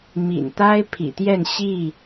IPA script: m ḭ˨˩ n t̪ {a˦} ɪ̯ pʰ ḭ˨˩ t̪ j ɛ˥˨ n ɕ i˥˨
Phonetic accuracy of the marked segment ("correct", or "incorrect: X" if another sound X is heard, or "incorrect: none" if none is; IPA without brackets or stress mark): correct